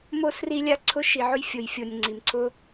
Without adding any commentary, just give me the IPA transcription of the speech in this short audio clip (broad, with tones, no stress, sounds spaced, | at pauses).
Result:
m o˧ s r i˧ lʲ a˧ ǀʰ ʊ˧ ʃ i˨ ʕ ʊ˧ j fʲ o˨ j fʲ o˨ nʲ ŋ͡ǀ i˨ m ǀʰ ʊ˧